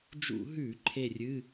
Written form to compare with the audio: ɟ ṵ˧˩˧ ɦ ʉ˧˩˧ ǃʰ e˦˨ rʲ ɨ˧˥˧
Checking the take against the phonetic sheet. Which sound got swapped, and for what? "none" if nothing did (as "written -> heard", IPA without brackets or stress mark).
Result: ɟ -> d͡ʒ